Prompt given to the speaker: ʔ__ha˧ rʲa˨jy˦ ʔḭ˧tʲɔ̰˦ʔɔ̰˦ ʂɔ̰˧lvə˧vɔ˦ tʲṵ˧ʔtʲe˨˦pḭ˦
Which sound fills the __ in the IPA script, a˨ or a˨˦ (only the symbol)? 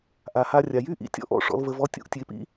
a˨